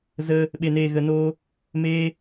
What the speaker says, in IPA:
z ə˦ | ɓ e˧ n eː˧ ɣ ə˧ n oː˦ | m eː˦

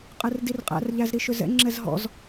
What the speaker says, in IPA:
qʼ ɛ r d i r qʼ æ̰ r ʎ æ z ɾ i ʃ ʏ z ɛ̰ ŋ͡ǁ ɛ z ɦ ɔ̰ z

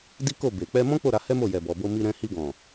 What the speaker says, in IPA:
d i˦ k o˦˨ b e˨ k͡p ɛ˧ m ɔ̃˦ k͡p o˦˨ ɾ a˨˦ h ɛ˦ m o˦˨ j ɛ˨ b ɔ˨ b o˧ m i˧ ɾ ɛ̃˧ h i˧ ɡ ɔ̃˨

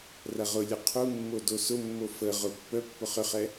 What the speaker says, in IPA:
r ɐ ʁ ʊ lʲ ə qʰ u mː o d o s ʊ mː o f ə ʁ ʊ pː œ pː ʊ χ ʏ χ ɛ

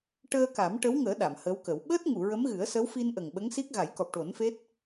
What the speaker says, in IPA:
ʈ əː˧ k a˨˩˦ m ʈ ə˧˥ w ŋ əː˨˩˦ ɗ a˨˩˨ m h əː˧˥ w k ə˨˩˦ w ɓ əː˦˥ t̚ ŋ u˨˩˨ ɹ ə˧˥ m ɣ ɨ˨˩˦ ə̯ s ə˧˥ w f i˧ n ʔ ə˨˩ ŋ ɓ ə˧˥ ŋ s i˦˥ k̚ ɣ a˨˩˦ j k ɔ˨˩ p̚ ʈ o˨˩˦ n f e˦˥ t̚

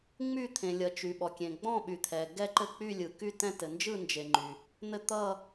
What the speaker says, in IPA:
ŋ͡m y˦˨ t̪ʰ ẽ˩ lʲ ʌ˩ t͡ʃ y˩ ɓ ɔ˩ kʲ ẽ˩ ɡ͡b ɔ̃˦˨ ɓ y˩ t̪ʰ ɛ˩ ɡ ɛ˦˨ ǃ ɘ˦˨ k͡p y˦˨ lʲ ɯ˩ k y˦˨ t ɛ̃˦˨ t ɘ˩ n d͡ʒ ɯ˦˨ n d͡ʒ e˩ ŋ͡ǃ y˩ | n̪ ɘ˦˨ t̪ ʌ˦˨

